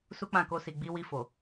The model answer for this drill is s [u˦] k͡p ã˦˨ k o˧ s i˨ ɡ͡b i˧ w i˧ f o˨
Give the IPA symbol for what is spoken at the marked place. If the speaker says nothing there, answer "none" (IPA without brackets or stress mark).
u˦